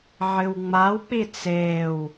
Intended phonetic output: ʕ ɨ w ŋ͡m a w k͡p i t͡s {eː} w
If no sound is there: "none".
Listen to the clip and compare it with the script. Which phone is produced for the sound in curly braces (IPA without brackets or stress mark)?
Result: eː